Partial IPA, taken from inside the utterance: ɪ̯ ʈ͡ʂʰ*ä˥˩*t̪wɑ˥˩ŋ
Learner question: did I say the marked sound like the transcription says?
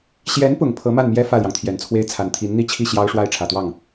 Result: no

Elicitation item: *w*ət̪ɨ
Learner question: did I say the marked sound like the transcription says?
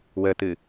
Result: yes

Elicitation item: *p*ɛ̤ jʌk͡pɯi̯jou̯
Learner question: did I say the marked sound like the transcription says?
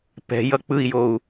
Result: yes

